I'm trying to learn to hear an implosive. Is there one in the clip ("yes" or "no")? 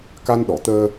yes